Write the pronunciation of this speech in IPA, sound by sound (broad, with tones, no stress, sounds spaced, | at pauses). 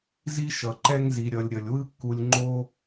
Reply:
z i˦ ʃ ʌ˨ ǃ ɛ˦ ŋ z i˧ ɾʲ ʌ˧ lʲ ɾʲ ʌ˧ lʲ w ɯ˦ kː u˧ lʲ ŋ͡ǃ o˦